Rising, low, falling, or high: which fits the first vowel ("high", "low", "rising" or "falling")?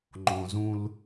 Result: low